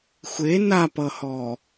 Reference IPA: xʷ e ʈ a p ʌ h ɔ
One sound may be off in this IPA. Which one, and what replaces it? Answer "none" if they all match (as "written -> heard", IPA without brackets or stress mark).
ʈ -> n